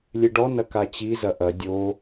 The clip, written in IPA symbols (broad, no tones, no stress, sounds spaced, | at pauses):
lʲ ɨ ɖ ɔ n ɐ k a t͡ɕ i z ɐ ʔ ɐ dʲ o